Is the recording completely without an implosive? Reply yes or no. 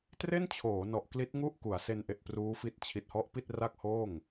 yes